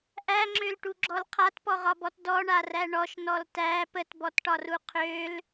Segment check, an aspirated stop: present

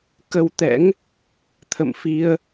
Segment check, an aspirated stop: present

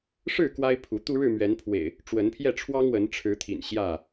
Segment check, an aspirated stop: present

